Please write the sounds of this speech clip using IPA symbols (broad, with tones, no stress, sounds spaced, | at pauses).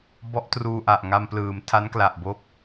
b ɔ˦˥ ʔ t r uː˧ ʔ a˨˩ ʔ ŋ a˧ m p l ɯː˩˦ m tʰ a˦˥ n k l a˨˩ ʔ b o˦˥ k̚